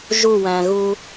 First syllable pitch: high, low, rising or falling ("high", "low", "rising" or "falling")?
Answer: falling